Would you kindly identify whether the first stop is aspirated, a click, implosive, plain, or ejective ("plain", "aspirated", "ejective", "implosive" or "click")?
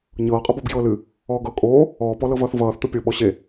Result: ejective